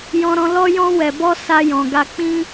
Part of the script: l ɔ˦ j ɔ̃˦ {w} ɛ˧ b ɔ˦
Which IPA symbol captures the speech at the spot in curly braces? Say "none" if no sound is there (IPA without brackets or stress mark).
w